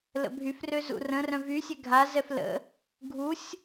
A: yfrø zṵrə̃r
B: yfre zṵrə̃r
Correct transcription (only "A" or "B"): A